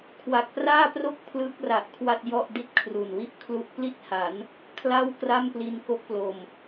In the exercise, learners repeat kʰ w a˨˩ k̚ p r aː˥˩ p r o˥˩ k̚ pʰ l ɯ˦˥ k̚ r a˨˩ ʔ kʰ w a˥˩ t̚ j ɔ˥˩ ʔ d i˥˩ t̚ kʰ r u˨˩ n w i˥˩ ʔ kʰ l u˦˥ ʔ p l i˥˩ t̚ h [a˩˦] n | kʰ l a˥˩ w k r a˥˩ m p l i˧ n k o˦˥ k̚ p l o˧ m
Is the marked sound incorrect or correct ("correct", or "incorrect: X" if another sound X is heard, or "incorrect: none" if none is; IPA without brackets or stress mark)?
correct